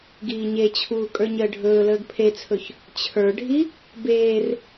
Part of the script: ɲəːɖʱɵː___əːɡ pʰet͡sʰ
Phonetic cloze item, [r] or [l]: l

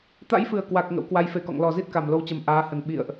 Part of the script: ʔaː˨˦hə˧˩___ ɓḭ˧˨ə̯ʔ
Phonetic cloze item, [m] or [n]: n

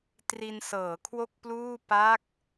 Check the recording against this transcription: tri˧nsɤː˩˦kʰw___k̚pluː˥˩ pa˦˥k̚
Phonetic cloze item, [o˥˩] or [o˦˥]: o˥˩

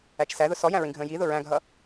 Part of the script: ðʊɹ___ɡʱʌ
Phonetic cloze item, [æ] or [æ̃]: æ̃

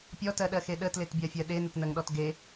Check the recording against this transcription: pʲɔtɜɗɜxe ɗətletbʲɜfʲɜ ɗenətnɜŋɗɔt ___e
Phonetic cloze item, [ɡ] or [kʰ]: ɡ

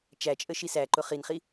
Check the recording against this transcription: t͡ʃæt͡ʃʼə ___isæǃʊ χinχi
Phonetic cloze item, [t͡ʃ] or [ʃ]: ʃ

